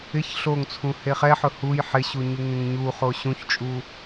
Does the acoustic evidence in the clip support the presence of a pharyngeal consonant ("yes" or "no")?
yes